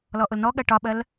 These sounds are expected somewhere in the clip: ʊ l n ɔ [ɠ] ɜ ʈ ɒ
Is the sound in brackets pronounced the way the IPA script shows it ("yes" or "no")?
yes